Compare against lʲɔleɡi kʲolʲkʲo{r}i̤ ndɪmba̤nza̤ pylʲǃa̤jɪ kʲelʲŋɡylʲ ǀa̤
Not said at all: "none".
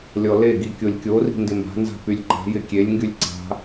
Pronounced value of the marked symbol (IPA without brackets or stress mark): r